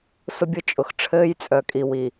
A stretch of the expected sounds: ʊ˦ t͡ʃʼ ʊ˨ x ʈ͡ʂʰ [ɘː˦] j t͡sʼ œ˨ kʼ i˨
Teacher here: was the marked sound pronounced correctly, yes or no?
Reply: yes